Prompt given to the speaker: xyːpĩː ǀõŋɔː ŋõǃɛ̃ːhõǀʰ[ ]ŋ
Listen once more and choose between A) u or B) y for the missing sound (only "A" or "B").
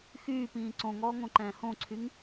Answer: B